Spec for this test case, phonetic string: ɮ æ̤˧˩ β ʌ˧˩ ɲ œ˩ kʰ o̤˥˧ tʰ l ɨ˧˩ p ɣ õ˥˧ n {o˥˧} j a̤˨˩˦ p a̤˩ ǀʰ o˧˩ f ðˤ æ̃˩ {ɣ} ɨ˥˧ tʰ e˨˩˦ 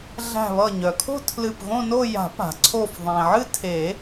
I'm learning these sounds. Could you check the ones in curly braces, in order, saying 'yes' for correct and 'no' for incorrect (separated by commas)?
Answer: yes, no